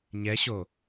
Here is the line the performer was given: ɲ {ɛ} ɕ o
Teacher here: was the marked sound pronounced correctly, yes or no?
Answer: yes